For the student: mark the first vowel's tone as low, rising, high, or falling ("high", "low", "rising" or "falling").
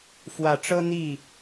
rising